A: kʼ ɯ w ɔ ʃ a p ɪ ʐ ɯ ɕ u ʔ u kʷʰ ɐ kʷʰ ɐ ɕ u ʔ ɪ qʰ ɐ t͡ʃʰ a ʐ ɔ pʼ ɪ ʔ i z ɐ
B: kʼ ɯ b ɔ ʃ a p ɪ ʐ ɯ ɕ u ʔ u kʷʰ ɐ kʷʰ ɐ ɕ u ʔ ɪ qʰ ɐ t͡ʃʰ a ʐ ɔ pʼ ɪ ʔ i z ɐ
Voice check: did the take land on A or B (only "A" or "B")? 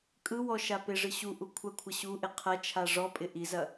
A